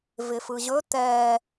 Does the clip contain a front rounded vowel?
no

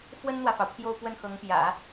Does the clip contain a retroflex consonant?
no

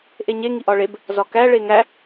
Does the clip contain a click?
no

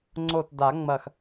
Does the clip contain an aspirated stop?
no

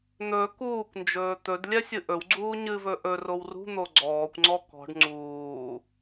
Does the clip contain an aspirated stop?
no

